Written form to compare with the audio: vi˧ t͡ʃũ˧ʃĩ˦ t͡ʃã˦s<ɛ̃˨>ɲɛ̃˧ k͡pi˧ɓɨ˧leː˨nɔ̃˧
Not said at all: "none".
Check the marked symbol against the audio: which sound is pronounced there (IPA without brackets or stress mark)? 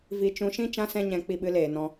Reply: ɛ̃˦